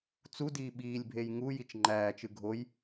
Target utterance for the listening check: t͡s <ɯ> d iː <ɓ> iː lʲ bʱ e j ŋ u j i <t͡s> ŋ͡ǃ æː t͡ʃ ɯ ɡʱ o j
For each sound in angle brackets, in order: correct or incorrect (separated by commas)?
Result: incorrect, correct, incorrect